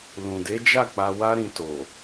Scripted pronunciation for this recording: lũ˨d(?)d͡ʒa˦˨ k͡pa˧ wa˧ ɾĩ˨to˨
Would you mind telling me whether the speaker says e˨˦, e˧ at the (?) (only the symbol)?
e˨˦